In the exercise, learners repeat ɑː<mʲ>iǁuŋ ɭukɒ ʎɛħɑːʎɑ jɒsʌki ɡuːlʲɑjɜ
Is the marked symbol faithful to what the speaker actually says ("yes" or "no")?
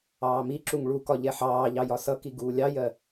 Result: no